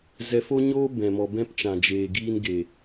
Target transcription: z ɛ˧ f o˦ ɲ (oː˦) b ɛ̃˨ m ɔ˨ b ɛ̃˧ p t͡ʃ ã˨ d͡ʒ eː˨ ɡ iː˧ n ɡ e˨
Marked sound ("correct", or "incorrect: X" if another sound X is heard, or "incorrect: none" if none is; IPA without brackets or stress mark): correct